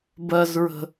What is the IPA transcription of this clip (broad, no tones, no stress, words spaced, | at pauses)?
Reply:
bɜzɹə̤